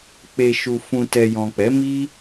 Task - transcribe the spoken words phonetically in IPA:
k͡p e˨ ʃ u˨ f ũ˨ t ɛ˨ j ɔ̃˨ k͡p ɛ˨˦ m i˦

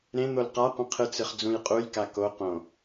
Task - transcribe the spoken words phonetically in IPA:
ɾ ẽ n̪ o l q a qʷ ə̃ qʰ ɨ t͡s ɨ χ d͡z ũ j qʼ u j k a k o q õ

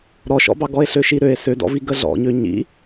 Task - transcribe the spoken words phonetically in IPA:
ɾ ɔ ʃ ɔ̰ b ɑ ɡ ɔ e̯ ɬ ø ʃ i ɾ ø e̯ s ø d ɔ̰ v i ɡ ə ɮ ɔ̰ ɲ ø ɲ ḭ

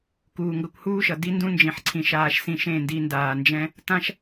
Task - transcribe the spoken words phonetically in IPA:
k uː˨ ŋ ɡ ʌ˧ kʷ h uː˦ ʃ ʌ˨ d i˦ n d ũ˦ n d͡ʒ ĩ˨ ħ ǀʰ ĩ˨ ʃ aː˧ ʃ s ĩ˧ ʃ ẽ˦˨ n d i˧ n d aː˨ n d͡ʒ ɛ̃˦ | t ã˦ ʃ

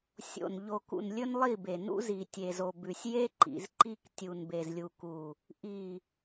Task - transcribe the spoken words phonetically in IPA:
sʲ o̰˨ n ʎ o˨ k ṵ˨ n lʲ ɵ˦ n lˠ i˦˨ b e˨ n ṵ˦ z i˨ tʲ e˨ z o˨ b ʉ˨ sʲ j e˦ ǃ ḭ˨ z ǃ i˦ k tʲ u˨ n b e˨ z lʲ u˨ k u˨ | ʔ i˨

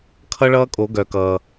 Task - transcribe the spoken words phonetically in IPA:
kʰ ʌ˦˥ ɭ ʌː˦˥ kʼ o˨˩˦ ɡ œ˨˩˦ k ʌː˩

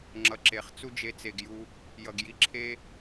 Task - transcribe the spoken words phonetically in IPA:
ŋ͡ǁ ʌ˨ ǁ e˨ χ t͡s u˦ d͡ʒ e˧ t͡s e˨ ɡ j u˧ | j ʌ˨ ɡ j i˧ ǁʰ e˦

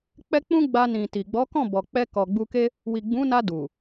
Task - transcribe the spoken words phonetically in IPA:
k͡p ɛ˦ k͡p ũ˦ ɡ͡b a˧ n ĩ˨ t i˨ ɡ͡b ɔ˨˦ k ɔ̃˦˨ b ɔ˨ k͡p ɛ˧ k ɔ˨ ɡ͡b u˧ k e˦ | w i˨ ɡ͡b ũ˨˦ n a˧ d u˨

